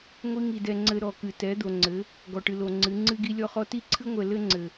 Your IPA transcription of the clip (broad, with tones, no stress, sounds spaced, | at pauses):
ŋʷ i˦ ŋ i˨ d ɛ˨ ŋ͡ǀ ɘ˨ ɾ ɔ˨ k ɨ˨ t ɛ˨˦ d̪ o˨ ŋ͡ǀ ɘ˨˦ | ɡ ɔ˨ ʈ ɨ˨ l o˨ ŋ͡ǀ ɨ˨˦ ŋ͡ǀ ɨ˦ ɡ i˦ lʲ ɔ˦ χ ɔ˦ t i˦ ǀʰ ɨ˦ ŋʷ ɛ˨ l ɘ˦ ŋ͡ǀ ɘ˨